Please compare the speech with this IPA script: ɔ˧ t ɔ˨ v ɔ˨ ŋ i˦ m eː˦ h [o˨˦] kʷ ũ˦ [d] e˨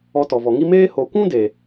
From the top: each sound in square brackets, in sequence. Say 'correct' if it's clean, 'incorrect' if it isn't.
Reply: correct, correct

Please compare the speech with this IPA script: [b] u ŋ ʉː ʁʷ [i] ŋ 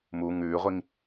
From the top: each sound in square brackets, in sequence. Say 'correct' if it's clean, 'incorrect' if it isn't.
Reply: incorrect: m, correct

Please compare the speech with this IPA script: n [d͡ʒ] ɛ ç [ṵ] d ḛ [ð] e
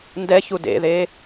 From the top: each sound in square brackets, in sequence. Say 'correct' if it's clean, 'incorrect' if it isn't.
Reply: incorrect: d, incorrect: u, correct

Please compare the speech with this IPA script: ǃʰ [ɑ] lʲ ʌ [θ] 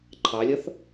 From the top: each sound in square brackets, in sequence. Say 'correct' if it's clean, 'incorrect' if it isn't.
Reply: correct, correct

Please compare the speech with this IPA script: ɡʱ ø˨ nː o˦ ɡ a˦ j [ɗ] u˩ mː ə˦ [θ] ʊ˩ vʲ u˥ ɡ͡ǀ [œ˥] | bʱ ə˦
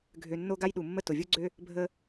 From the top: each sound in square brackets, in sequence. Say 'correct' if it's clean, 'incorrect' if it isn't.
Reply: correct, incorrect: t, incorrect: ø˥

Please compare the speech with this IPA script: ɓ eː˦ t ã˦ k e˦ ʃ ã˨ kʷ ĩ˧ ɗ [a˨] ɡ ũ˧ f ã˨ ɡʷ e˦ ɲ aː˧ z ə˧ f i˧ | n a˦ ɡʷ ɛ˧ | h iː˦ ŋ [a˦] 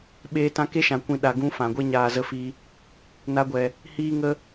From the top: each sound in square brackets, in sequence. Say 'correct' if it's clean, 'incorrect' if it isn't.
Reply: correct, incorrect: ə˦

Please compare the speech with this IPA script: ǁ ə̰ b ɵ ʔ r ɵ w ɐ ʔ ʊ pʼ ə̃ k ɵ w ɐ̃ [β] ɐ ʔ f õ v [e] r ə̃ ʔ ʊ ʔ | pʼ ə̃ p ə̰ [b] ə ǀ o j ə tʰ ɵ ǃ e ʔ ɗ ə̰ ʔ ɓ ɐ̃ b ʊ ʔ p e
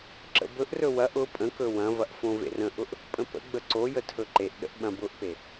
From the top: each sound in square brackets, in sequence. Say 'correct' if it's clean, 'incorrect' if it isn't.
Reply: incorrect: v, incorrect: ḛ, incorrect: ɡ͡b

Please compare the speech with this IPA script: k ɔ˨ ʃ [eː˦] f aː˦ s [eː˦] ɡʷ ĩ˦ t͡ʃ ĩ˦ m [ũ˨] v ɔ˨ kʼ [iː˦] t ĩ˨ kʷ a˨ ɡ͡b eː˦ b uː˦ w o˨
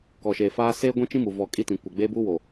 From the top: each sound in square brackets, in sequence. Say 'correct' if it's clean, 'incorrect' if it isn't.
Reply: incorrect: eː˨, correct, incorrect: u˨, incorrect: i˦

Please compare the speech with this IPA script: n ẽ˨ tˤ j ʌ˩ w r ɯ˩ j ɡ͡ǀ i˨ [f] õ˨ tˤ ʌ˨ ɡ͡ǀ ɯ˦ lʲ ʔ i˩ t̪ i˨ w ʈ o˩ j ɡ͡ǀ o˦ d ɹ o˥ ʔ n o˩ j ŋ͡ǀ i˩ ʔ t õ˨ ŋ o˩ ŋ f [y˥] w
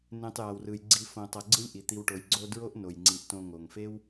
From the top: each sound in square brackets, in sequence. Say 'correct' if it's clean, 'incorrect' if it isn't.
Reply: correct, incorrect: e˥

